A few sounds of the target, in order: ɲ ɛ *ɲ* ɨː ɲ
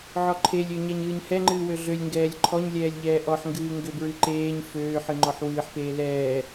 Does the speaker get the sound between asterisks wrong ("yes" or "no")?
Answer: no